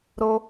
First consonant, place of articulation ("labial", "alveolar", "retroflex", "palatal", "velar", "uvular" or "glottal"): alveolar